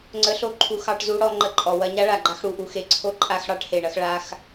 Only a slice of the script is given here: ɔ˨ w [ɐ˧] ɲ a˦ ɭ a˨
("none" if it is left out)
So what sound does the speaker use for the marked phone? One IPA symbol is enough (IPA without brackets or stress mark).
ɐ˧